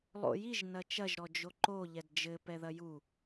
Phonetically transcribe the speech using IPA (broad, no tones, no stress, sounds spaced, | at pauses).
lˠ o̰ j i ʒ n ɐ t͡ʃ ɐ ʒ ɾ ɔ d͡ʒ o ǃ o ʎ ɛ d d͡ʒ ɘ p ɛ ð ɐ j u